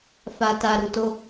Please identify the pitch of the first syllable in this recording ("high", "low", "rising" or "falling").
low